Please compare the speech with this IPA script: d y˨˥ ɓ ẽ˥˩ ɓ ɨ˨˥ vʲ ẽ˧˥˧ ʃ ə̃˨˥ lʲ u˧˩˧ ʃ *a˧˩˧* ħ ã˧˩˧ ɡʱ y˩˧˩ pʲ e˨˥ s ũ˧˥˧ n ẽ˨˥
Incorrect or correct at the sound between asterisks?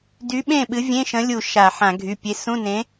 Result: correct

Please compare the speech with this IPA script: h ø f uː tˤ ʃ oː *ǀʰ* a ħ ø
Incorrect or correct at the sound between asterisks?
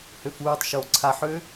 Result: correct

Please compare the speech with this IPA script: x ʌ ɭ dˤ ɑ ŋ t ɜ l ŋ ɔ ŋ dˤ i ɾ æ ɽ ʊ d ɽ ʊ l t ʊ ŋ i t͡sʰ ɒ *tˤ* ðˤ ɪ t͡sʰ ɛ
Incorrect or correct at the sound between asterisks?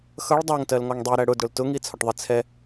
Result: incorrect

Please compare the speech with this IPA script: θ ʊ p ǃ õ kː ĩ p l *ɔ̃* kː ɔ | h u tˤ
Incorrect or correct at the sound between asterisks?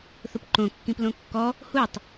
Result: incorrect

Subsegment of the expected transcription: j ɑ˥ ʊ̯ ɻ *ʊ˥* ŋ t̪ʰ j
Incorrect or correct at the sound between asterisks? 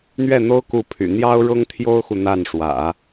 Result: correct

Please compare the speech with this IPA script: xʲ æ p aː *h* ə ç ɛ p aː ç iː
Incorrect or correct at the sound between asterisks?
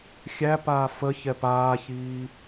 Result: incorrect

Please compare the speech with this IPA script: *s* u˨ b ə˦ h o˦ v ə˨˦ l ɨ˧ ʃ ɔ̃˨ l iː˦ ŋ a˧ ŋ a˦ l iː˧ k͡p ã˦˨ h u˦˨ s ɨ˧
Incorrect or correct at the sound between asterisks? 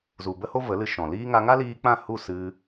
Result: incorrect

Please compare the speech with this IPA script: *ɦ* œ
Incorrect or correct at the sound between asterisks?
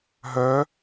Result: correct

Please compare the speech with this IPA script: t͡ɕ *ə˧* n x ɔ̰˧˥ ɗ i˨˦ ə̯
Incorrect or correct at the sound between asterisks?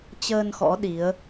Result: incorrect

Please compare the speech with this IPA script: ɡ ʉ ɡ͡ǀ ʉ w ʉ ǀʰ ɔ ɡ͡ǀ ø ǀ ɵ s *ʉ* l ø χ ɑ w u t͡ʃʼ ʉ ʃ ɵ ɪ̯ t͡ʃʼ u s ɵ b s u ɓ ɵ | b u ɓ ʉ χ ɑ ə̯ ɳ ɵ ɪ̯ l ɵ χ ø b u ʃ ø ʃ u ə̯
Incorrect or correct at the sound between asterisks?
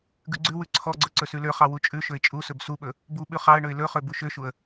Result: correct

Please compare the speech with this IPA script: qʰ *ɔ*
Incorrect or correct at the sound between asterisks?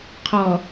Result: correct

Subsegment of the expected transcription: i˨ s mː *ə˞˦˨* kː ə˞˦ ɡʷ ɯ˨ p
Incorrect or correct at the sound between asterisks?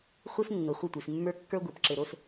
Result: incorrect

